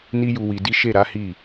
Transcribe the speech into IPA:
n i˦ j u˧ w i˧ d i˦ ʃ e˦˨ ɾ a˨˦ h i˦˨

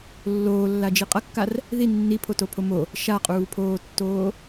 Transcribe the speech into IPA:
lː oː lː a d͡ʒ i qʼ ɐ kː a r | ð i nː i pʰ o t o pʰ o m o | ʃ a qʼ uː pʰ oː tː oː

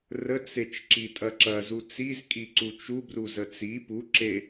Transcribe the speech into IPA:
r ə t͡s e t͡ʃ ǁ i tʼ ɐ ǁ ɐ z u t͡s i z kʼ i ǀ u t͡ʃ u b r u z ə t͡s i p u ǁ e

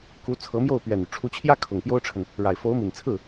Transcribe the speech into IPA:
k u˧˥ t͡sʰ ɤ˧˥ m j o˥˩ ʊ̯ p ɥ ɛ˨˩ n y˦ ʈ͡ʂʰ u˧˥ t͡ɕʰ j ä˥ kʰ ʊ˨˩ ŋ p j o˥ ʊ̯ ʈ͡ʂʰ ə˨ n | ɻ a˨˩ ɪ̯ f o˧˥ ʊ̯ m i˨˩ n t͡sʰ ɹ̩˥˩

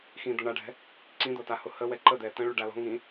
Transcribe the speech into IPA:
x ĩ d̪ ɤ ɳ a ɖʱ ɛ̤ | ǀ ĩ d̪ ɤ t a h ʊ h ə w ɛ ǃ ə d̪ ɛ t ə̃ ɭ ʉ ɖ a l ɔ̤ ŋ ĩ

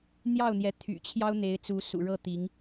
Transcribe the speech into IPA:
n̪ j ɑ˥˩ ʊ̯ n̪ j ɛ˧˥ t̪ʰ y̰˨˩ t͡ɕʰ j ɑ˥ ʊ̯ n̪ e˧˥ ɪ̯ t͡s u˧˥ s ṵ˨˩ ɻ ɤ˥˩ t̪ i˧˥ ŋ

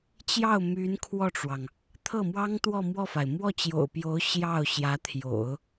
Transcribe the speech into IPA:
t͡ɕ j ɑ˥˩ ʊ̯ m y˧˥ n kʰ w ɔ˥˩ ʈ͡ʂ w ɑ˩ ŋ | t̪ʰ ɤ˥˩ m w ɑ˥ ŋ t̪ w ɔ˥˧ m w ɔ˥˩ f a˩ ɪ̯ m w ɔ˥˩ t͡ɕ j o̰˨˩ ʊ̯ p j o˧˥ ʊ̯ ɕ j ɑ˥˩ ʊ̯ ɕ j ä˧˥ t̪ʰ j o̰˨˩˦ ʊ̯

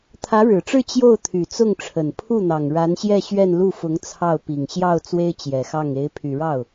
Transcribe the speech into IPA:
t̪ʰ ä˧˥ ɻ ɻ̩˨˩ ʈ͡ʂ ɻ̩˥˧ t͡ɕ j o˥˩ ʊ̯ t̪ʰ y˨˩ t͡s ʊ˥˩ ŋ ʈ͡ʂʰ ə˨˩ n pʰ u˥˩ n̪ ɑ˨˩ ŋ ɻ a˧˥ n ɕ j ɛ˥˧ ɕ ɥ ɛ˥˧ n l u˥˩ f ʊ˧˥ ŋ t͡sʰ ɑ˥˩ ʊ̯ p i˨˩ ŋ ɕ j ɑ˥˩ ʊ̯ t͡s w e˥ ɪ̯ t͡ɕ j ɛ˨˩ x ɑ˥˩ ŋ e˧˥ ɪ̯ pʰ y˨˩ ɻ ɑ˥˩ ʊ̯

